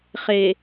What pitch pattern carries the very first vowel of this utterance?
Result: low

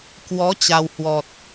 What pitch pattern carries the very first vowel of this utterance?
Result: rising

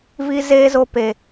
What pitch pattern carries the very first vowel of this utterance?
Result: high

